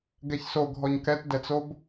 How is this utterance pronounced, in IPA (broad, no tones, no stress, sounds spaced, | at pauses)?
ɡ ɛ ç s o ɡʱ ɔ ɲ k ɛ t d ɛ t͡s o b